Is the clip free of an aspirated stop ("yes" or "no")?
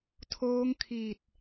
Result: no